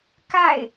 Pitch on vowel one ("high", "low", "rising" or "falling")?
falling